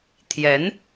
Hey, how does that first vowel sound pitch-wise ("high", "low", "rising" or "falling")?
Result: rising